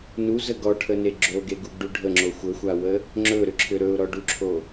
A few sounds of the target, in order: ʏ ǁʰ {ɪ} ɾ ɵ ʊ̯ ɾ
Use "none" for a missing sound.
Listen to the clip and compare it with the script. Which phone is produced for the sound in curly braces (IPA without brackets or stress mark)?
ʏ